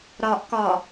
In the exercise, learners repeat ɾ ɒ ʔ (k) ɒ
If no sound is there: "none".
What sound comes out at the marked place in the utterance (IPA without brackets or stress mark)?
k